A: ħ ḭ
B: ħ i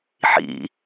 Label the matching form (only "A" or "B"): A